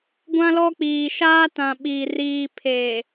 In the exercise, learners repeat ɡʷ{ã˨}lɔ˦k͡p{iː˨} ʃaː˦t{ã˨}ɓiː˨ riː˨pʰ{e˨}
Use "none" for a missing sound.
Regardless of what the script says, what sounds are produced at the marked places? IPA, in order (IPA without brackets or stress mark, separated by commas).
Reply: ã˦, iː˨, ã˨, e˨